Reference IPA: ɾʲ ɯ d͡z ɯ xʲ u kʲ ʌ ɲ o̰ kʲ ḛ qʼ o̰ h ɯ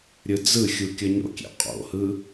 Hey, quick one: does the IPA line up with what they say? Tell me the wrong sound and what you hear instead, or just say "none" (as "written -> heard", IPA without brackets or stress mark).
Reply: none